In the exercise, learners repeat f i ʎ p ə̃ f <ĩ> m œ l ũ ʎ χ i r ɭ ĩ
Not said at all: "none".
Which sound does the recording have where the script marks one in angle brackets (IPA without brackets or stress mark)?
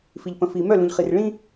i